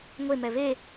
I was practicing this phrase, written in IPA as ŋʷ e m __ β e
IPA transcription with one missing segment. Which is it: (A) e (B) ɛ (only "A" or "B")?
B